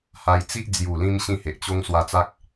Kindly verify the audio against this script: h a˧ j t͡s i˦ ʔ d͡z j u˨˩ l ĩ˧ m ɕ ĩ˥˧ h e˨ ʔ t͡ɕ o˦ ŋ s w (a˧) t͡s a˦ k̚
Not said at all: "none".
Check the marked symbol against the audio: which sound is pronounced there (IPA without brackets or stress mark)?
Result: a˧